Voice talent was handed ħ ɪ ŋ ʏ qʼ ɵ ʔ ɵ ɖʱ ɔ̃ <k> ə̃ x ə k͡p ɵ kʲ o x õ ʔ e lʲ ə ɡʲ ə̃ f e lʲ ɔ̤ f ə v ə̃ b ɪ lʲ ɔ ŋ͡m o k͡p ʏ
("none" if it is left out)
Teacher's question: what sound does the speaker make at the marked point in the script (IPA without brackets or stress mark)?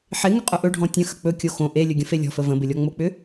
tʲ